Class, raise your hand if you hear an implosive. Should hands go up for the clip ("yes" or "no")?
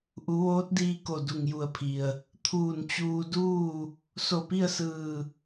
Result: no